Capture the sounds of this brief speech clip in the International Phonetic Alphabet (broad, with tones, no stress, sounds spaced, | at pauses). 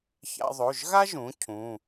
ç a̰˥ ðˤ o˧˥˧ ʒ ɣ a˥ ʒ ũ˨˦ cʰ ũ˧˥˧